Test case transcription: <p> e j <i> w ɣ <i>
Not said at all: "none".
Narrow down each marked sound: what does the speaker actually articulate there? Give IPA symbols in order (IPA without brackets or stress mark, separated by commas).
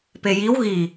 p, i, i